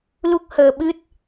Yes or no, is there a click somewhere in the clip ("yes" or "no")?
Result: no